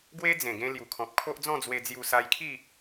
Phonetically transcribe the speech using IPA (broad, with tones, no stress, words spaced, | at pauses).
ɡwe˦d͡zẽ˨˩ɡẽ˧ lju˨˩kʰɔ̃˨p̚kʰo˦ʔd͡zɔ̃˥˧ d͡zwe˧d͡zju˧sa˧jkʰi˥˧